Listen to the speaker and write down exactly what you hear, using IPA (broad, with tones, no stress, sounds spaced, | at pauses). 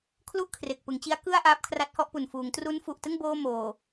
kʰ l u˥˩ ʔ kʰ r e˨˩ k̚ p ɯ˩˦ ŋ t͡ɕ i˦˥ a̯ k ɯ˥˩ a̯ ʔ aː˦˥ p̚ kʰ r a˦˥ t̚ h ɔ˥˩ ʔ p u˨˩ n f uː˩˦ ŋ t r u˦˥ n f u˨˩ ʔ t ɯ˥˩ ŋ b oː˧ m oː˨˩